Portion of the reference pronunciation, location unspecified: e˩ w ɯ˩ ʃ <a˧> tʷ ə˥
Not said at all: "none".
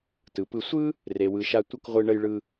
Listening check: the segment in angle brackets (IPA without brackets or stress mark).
a˧